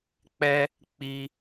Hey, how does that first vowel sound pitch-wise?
high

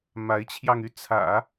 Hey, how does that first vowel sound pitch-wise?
rising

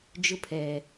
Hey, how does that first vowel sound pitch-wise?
high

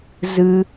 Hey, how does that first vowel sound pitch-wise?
high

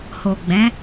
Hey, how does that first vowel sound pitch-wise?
low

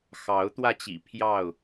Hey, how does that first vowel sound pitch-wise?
rising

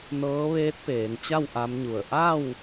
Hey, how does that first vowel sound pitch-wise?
rising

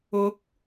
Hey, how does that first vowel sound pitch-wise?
rising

